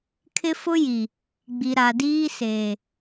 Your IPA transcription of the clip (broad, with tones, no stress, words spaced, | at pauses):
kʰɪ˦fʊ˦ ji˨ | ɡ͡bi˨ɾa˨diː˦seː˨